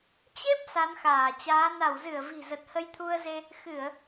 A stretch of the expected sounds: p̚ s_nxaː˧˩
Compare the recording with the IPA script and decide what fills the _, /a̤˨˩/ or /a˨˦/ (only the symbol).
a˨˦